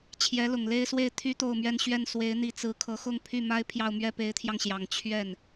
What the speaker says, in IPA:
t͡ɕʰ j ɛ˧˥ l ʊ˨˩ ŋ l e˥˧ ɪ̯ s w e˥˩ ɪ̯ t̪ʰ y˥ t̪ o˥˧ ʊ̯ m ɥ ɛ˥˧ n ɕ ɥ ɛ˥˩ n s w e˧˥ ɪ̯ n̪ i˧˥ t͡s ɹ̩˧˥ kʰ ɤ˧˥ x ʊ˥˧ ŋ pʰ y˥˩ m a˥ ɪ̯ pʰ j ɑ˥˧ ʊ̯ m ɥ ɛ˥˩ p e˧˥ ɪ̯ t̪ʰ j ɑ˧ ŋ ɕ j ɑ˨˩ ŋ t͡ɕʰ ɥ ɛ˥˩ n

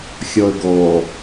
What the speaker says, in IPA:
xʲ ɔ ə̯ ɡ ɔ

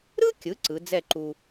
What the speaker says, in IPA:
ɾ ɯ˥ kʲ ɯ˩˧ ǀ ɯ˩˧ d͡z ɛ˥˧ ǃ u˧

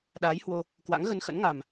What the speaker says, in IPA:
ɗ aː˨˦ j h w o˧ | k w a̰˧˥ ŋ ɣ ə˧ n x ə̰˧˥ n ŋ a˨˩ m

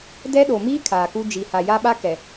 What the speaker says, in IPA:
d ɛ˦ ɗ o˨ m iː˦ kʰ aː˨ k u˦ d͡ʒ i˨ h a˨ j a˦ ɓ a˦ k ɛ˨

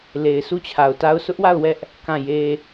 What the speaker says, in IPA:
l e˨ ɪ̯ sʰ u˦˨ t͡ɕʰ a˨ ʊ̯ t a˦ ʊ̯ sʰ ʊ˦ ʔ w a˦˨ ʊ̯ w ɛ˦ ʔ | k ã˦˨ j e˦

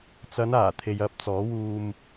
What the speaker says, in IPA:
t͡s ɐ˨˧ n aː˨˩ t̪ʰ e˨ j ɐ˧ p̚ t͡s ɔː˨˥ w uː˧ m

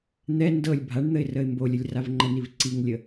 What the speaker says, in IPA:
n̪ ɛ n d ɤ lʲ bʱ a ɳ n̪ ə ɪ̯ r ə ɪ̯ m b o lʲ ə lʲ r a v ŋ͡ǃ ə n i v ǀ i ŋ lʲ ə

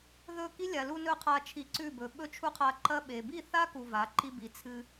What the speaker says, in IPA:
ð ɵ˦˨ k i˦ lʲ a˨ l u˧ n ɵ˦˨ qʰ a˧ t͡ʃʰ i˧ ǀ ʉ˦˨ b ɵ˨ ɓ ɵ˦ t͡ʃʰ u˦ qʰ a˧ ǃ ɐ˦ ɓ e˨ b i˦˨ θ a˦ k u˨ v a˨˦ ǃ i˦ b i˨˦ t͡sʰ ɨ˦

